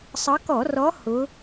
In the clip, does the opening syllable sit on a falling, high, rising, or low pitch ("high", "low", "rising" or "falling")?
rising